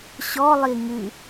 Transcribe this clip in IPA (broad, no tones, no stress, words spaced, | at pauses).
ɕɔlˠi ŋɨ